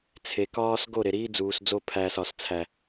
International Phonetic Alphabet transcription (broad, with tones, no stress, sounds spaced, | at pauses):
t͡sʰ e˨ k ɒː˦ s ɡ o˦˨ ɾ e˨ ɾ iː˦ d͡z uː˨ s d͡z o˦ pʰ æː˦ s ɒ˨ s t͡sʰ æ˦